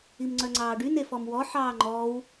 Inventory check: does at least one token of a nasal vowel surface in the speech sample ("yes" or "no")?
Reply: no